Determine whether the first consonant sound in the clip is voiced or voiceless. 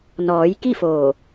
voiced